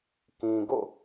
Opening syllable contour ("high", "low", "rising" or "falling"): low